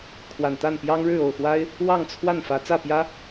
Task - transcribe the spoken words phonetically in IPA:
kʰ w a˨˩ n t̪ a˥˨ n p j ɑ˦ ŋ ɻ ɻ̩˥˨ o˥˨ ʊ̯ x w a˦ ɪ̯ | w ɑ˥˨ ŋ t͡sʰ w a˥˨ n f ä˨˦ t͡s ä˥˨ p j ä˦

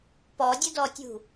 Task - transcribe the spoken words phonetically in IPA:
p ɔ dʲ ʊ d ɔ tʲ ṳ

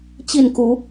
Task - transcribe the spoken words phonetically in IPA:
t͡ɕ i˥˨ n k u˨˦

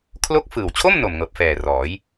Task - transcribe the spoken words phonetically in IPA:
kʰ l o˦˥ k̚ f ɯː˨˩ w t͡ɕʰ o˥˩ m n o˨˩ m ŋ ɤː˨˩ p̚ f ɛː˨˩ r ɔː˩˦ j

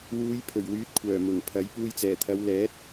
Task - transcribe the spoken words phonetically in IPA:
w uː˨˧ j pʰ ɵ˨˩ ɥ w yː˨˥ t̚ kʷʰ œː˨˩ m ʊ˨˩ ŋ pʰ ɐ˨˥ j p uː˧ j t͡s ɛː˨˩ t̪ʰ ɐ˨˧ w l ɛː˨˥ t̚

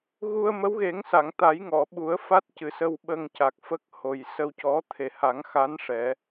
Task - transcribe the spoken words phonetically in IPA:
ɣ u˧ ə̯ m ə˧˥ w ɣ e˨˩˦ ŋ s a˨˩˨ ŋ t̪ a˨˩˦ j ŋ ɔ˨˩˨ ɓ u˨˩˦ ə̯ f a˦˥ t̚ c ɨ˨˩ s ə˧ w ɓ ə˧ ŋ c a˨˩ k̚ f ə˦˥ k̚ h o˨˩ j s ə˧ w c ɔ˧˥ t̪ʰ e˨˩ h a˨˩˦ ŋ x a˧˥ n ʂ ɛ˨˩˦

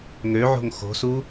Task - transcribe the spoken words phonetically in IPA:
ŋ ø ʕ o̤ ŋ x o̤ s u

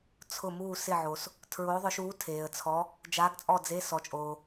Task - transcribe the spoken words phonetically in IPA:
t͡sʰ ʊ˦˨ m uː˦˨ s ɪ˦˨ ʕ o˨ s | tʰ ɹ oː˧˥ ðˤ ʊ˧˥ ʃ uː˧˥ tʰ eː˨ ə̯ t͡sʰ ɔ˧˥ | d͡ʒ aː˧˥ ɡ t͡sʼ ɔ˦˨ d͡z e˧˥˧ s ɔ˨ t͡ʃʼ oː˨

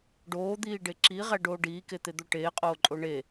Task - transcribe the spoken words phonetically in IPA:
ɖ oː d̪ iː ɖ e ǁ i ʁ æ ɖ oː ɖ iː k e t̪ e d̪ o ʈ eː qʼ oː ǃʼ o ɳ e

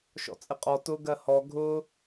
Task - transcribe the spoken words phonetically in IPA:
ʃ ɔ̰ t͡sʼ ɪ qʼ ɔ t ʊ ɡ ɜ h ɔ ɡʱ ʊ

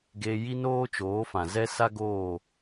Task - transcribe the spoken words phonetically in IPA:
ɡ e˧ j i˦ n oː˦ t͡ʃ oː˨˦ f ã˨ z ɛ˦ s a˦ ɡ oː˦˨

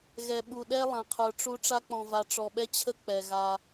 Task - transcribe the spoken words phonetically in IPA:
ɣ ɛ˨ ɓ u˨ ɗ ɛ˦ lˠ ã˨ qʰ ə˞˨ ʈ͡ʂ u˦ ʈ͡ʂ a˦ k͡p ɔ̃˨ v a˨ ʈ͡ʂ ɔ˨ ɓ ɛ˦ t͡ɕʰ ə˦ k͡p ɛ˨ ɣ a˦

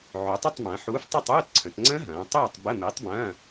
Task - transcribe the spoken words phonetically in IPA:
ʕ ø˩˧ tˤ ɪ˥˨ tˤ m ɐ̃ː˩˧ ħ uː˨˥ f tˤ ɪ˥˨ tˤ uː˧˥˧ t ǀʰ ə̃˩˧ t ŋ͡ǀ ə̃˦˥ ɦ ɐ̃ː˩˧ tˤ uː˥˨ tˤ b ə˧˥˧ m i˨˥ tˤ b ɐ̃ː˧˥˧

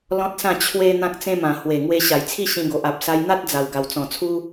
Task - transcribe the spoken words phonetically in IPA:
l ɔ̃˦ t̚ s ã˥˧ t͡ɕʰ w e˦ n̪ ã˦ k̚ t͡s ẽ˦ m ã˨˩ h w e˨˩ ŋ w e˧ ɕ a˨˩ j t͡sʰ i˥˧ ɕ ĩ˧ ɡ o˨ ʔ a˨ p̚ s a˧ j n̪ a˦ t̚ d͡z a˨˩ w ɡ a˨˩ w t͡s ɔ̃˨˩ t͡sʰ u˦

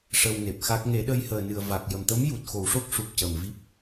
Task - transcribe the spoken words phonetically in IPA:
ʂ ə˧ w n e˨˩ p̚ x a˦˥ k̚ ŋ e˨˩˦ ɗ ə˧ j h əː˨˩ n ɨ˨˩ ə̯ v a˨˩ k̚ j ə˨˩ m t̪ ə˧˥ m j u˨˩ t̚ x o˨˩˦ w ʂ o˦˥ k̚ ʂ u˨˩ p̚ c ə˨˩ m v i˦˥ p̚

